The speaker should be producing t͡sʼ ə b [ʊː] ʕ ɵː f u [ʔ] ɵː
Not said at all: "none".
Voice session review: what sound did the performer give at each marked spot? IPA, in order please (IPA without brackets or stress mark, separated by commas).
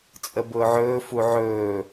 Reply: ʊː, ʕ